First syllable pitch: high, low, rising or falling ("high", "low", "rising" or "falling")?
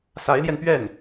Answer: rising